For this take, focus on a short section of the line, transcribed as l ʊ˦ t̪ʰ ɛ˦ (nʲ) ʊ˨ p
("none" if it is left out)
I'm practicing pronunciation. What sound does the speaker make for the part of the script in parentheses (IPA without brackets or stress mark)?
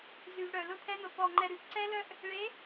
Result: n̪